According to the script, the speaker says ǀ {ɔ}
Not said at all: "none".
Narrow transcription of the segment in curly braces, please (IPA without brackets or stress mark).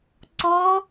ɔ